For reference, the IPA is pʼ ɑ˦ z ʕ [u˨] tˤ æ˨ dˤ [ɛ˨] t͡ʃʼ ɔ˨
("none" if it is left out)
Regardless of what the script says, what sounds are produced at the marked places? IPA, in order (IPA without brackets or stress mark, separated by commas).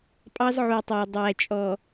u˨, æ˨